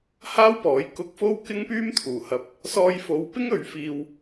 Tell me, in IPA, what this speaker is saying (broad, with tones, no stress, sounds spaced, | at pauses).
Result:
h aː˥ w p ɔː˨˥ j k ʊ˧ k̚ f o˥ w k ɪ˥ ŋ p yː˥ m t̪ʰ uː˨˩ h ɐ˨˥ p̚ | s ɔː˧ j f o˨˧ w p ɪ˥ ŋ ɵ˨˧ ɥ f iː˧ w